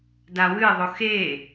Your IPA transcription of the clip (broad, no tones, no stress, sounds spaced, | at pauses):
d a w ɨ ðˤ o x e